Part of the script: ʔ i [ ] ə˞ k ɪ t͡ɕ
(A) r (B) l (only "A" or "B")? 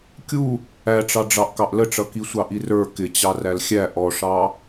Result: A